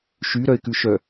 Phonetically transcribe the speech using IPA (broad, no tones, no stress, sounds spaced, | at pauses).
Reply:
ʃ y ɾ œ ɪ̯ k ʉ ʃ œ